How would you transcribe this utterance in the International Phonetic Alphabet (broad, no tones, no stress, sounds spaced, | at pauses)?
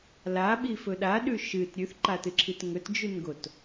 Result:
l a ɓ i f ɵ ɗ a ɗ ʉ ʃ ɨ t ɾʲ ʉ θ ǃ a t ɨ ǁʰ i t ŋ ɵ t d͡ʒ ʉ n ɡ o t